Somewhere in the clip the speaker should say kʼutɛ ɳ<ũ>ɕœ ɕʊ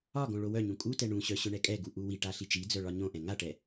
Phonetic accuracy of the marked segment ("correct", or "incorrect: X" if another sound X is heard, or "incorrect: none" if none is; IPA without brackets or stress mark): correct